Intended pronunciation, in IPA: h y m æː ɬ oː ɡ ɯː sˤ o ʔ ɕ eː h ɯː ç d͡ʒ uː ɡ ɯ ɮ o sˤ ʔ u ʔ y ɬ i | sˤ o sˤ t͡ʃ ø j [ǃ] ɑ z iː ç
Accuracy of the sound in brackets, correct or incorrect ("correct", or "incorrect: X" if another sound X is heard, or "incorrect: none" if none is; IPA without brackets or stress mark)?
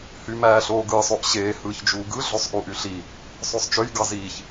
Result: incorrect: ɡ